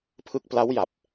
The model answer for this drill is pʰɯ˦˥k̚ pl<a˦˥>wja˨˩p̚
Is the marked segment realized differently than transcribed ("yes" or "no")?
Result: no